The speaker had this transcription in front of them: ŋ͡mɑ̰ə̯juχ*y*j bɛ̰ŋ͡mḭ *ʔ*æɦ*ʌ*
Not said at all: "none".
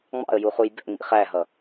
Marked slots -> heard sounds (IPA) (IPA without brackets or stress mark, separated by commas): u, χ, ʌ